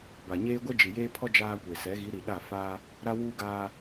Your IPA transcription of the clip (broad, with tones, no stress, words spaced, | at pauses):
ba˨ɲeː˦ ɡʷɛ˦d͡ʒi˨jeː˦pʰɔ˦ d͡ʒaː˦kʷe˨ sɛ˨˦ ɣi˨˦ɾi˨ɗa˦˨ faː˦ | ɾa˦wuː˦ɡaː˦